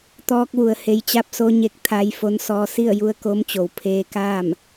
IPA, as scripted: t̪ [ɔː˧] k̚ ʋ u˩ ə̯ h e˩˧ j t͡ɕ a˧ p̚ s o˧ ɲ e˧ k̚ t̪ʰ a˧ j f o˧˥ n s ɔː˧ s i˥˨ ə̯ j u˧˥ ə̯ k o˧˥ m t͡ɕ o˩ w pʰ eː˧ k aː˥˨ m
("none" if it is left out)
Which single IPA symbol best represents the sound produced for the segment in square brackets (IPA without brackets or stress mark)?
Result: ɔː˧